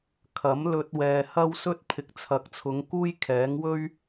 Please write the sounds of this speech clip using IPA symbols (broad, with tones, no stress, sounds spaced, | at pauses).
kʰ ɐ˨˥ m l ɵ˧ t̚ w ɛː˧ h ɐ˥ w s ɵ˥ t̚ pʰ ɪ˨ k̚ t͡sʰ ɐ˨˥ k̚ t͡sʰ ʊ˨˧ ŋ k uː˥ j kʰ ɛː˨˥ ŋ w ɵ˥ ɥ